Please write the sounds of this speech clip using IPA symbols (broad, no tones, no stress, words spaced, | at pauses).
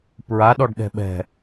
pɹa ɗɔɖɗɛ̤ɓɛ̤